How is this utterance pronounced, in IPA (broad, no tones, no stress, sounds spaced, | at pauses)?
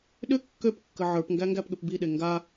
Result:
ɗ ʏ kː ø p kː ə ʕ ə˞ p ŋ ɡ æ ŋ ɡ æ p ɠ ʏ p b i ɗ e ŋ ɡ a